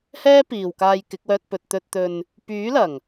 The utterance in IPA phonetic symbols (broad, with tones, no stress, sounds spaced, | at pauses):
h ɛː˥ p iː˨ w k aː˧ j k ɪ˨˥ k̚ w œː˧ t̚ p ɵ˨ t̚ t̪ ɵ˨ t̚ t̪ ɵ˨ n | p yː˨˥ l ɐ˨˩ ŋ